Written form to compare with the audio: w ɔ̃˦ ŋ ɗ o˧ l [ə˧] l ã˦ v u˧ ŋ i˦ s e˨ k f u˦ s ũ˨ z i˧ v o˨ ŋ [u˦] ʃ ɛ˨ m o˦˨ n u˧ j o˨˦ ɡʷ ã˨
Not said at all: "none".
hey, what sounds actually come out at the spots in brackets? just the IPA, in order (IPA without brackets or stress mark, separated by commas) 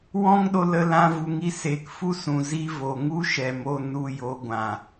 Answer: ə˧, u˦